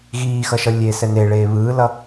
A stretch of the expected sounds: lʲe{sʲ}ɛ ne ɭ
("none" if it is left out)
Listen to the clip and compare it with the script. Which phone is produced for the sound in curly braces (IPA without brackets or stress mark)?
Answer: s